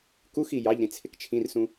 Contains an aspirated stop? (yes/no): yes